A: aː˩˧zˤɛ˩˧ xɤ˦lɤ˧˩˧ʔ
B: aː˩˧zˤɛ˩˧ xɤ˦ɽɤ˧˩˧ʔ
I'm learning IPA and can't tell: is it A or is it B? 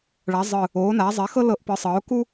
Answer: A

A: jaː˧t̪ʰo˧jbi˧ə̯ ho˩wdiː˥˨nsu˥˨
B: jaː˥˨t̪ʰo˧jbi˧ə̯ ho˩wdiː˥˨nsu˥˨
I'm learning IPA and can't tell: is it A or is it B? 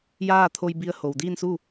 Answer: B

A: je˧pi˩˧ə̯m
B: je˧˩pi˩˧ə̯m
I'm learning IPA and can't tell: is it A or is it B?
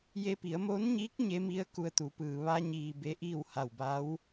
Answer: A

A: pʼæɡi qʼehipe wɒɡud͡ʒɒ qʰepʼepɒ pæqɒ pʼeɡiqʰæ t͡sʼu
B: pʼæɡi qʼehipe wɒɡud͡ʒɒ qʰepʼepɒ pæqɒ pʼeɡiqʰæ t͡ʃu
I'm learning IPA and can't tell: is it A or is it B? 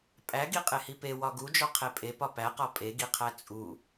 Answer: A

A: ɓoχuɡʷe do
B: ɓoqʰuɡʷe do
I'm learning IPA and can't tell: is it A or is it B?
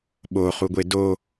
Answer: A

